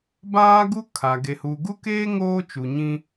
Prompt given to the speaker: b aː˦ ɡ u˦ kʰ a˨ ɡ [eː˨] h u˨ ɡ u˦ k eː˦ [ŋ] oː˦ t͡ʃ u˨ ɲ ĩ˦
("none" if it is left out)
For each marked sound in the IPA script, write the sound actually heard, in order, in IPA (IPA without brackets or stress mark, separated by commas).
e˨, ŋ